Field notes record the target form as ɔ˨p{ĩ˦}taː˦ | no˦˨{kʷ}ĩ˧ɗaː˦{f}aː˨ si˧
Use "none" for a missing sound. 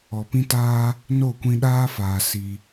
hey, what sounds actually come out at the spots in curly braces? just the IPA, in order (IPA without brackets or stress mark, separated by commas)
ĩ˦, kʷ, f